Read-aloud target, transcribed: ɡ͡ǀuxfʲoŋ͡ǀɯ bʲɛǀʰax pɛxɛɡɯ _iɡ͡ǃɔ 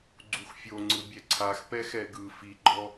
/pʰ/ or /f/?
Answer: f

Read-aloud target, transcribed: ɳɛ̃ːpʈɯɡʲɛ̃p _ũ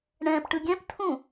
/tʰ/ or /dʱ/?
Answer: tʰ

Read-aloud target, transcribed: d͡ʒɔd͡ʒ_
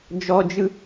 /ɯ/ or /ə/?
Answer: ɯ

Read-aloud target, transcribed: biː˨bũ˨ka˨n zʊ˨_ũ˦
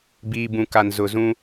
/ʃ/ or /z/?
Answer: z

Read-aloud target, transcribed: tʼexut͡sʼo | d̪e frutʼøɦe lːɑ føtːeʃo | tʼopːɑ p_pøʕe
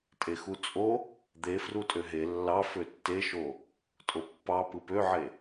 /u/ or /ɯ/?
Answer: ɯ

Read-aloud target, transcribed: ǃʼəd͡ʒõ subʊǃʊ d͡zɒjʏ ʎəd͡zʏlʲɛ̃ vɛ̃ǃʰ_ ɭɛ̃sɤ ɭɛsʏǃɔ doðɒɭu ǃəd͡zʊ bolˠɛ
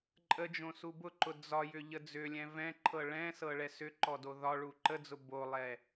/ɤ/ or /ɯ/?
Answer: ɤ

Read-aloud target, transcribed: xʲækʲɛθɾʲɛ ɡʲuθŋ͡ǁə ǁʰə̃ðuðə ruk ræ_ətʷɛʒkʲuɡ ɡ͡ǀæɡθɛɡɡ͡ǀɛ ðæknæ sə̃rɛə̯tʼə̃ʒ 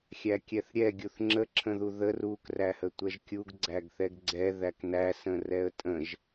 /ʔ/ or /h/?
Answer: h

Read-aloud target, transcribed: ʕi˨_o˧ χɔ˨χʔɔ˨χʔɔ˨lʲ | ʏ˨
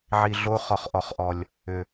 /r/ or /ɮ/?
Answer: ɮ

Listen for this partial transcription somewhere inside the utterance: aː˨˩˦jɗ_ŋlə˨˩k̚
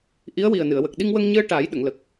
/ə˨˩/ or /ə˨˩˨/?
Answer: ə˨˩˨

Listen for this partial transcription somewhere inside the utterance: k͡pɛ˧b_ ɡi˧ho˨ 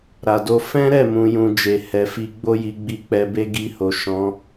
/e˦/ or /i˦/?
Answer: e˦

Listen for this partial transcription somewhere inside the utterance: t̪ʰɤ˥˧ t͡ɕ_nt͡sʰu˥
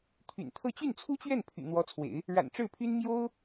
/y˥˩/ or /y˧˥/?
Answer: y˥˩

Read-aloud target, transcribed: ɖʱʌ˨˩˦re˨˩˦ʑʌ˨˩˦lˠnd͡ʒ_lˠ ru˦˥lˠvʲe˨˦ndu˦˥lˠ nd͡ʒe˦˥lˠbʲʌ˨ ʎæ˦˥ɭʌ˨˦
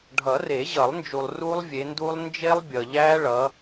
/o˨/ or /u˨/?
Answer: u˨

